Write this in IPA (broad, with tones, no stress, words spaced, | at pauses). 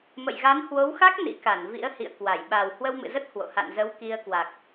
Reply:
mə̰˧˨jɣa˨˦nhwo˨˦wxa˦˥k̚ nḭ˧˥ka˧˩n vḭ˧˥ə̯hḭ˧˨ə̯ kwa˧˩j ɓaː˨˩w hwə˧wmɨ̰˧˨zə˦˥t̚ hwo̰˧˨ ha̰˧˨nzə˨˦w ki˧ə̯ kwa˨˩k̚